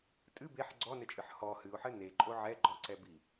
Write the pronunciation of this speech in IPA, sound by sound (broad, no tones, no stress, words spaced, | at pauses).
tʼɨ beħ ɡ͡ǀɔnɘt͡ʃʼɨħ hɔ hɨʊ̯ħɘ neǃʼo ʕɛɡ͡ǃɔǀɛ bi